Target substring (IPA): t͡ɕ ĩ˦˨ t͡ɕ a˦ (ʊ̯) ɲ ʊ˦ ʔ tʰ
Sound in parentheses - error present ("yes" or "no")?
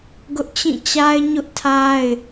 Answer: yes